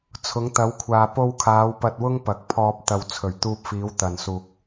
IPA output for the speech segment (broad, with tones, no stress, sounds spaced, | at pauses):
t͡sʰ ʊ˨˧ ŋ t̪ ɐ˨˧ w kʷʰ aː˨ p o˧ w kʰ aː˨˧ w p ɐ˧ t̚ w ʊ˥ ŋ p ɐ˨˥ k̚ pʰ ɔː˧ p̚ t̪ ɐ˨ w t͡sʰ ɵ˨˩ ɥ t̪ uː˧ p̚ f iː˨˧ w t̪ ɐ˨ n s uː˨ k̚